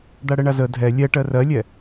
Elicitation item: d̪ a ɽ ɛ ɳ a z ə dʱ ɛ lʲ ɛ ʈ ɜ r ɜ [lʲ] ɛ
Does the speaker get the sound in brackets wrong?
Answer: no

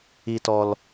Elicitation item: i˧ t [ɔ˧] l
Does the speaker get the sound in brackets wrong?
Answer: no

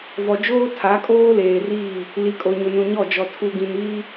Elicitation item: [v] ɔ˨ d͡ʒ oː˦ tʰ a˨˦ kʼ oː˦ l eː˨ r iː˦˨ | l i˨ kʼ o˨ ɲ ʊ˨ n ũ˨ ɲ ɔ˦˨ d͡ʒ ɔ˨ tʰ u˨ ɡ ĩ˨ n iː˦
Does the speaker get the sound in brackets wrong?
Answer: no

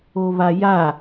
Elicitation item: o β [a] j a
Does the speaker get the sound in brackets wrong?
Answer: no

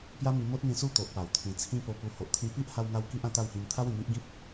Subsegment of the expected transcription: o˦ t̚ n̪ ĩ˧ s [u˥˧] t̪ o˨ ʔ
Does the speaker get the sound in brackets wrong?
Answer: no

